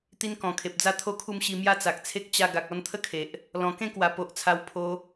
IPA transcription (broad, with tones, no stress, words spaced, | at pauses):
t̪i˦nkɔ̃˨˩kʰe˨p̚ d͡za˥˧t̪ʰo˥˧kʰu˥˧mɕi˧ mja˦t͡sa˨k̚t͡sʰe˦k̚ t͡ɕa˧ ɡa˨k̚ɔ˥˧nt̪ʰə˦kʰe˨ʔ | lɔ̃˨˩kẽ˥˧kwa˨˩ po˨ʔt͡sʰa˧w pʰo˧